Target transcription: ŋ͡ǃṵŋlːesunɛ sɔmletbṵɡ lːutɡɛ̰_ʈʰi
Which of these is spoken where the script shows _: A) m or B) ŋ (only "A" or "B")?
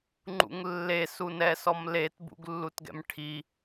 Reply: A